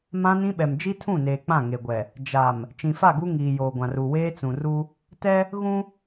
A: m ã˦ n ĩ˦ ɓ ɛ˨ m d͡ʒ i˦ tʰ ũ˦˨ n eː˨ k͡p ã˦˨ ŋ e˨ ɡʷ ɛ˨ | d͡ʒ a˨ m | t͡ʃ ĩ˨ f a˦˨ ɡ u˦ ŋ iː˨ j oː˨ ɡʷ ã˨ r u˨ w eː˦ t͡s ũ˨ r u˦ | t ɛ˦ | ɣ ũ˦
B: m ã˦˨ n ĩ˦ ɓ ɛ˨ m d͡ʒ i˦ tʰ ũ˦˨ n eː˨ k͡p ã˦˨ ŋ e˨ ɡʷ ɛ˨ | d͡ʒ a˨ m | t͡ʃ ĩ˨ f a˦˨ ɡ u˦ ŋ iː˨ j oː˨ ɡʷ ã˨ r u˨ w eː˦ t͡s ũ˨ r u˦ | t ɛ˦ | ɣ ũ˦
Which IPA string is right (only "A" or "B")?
A